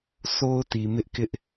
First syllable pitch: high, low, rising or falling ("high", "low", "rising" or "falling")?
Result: high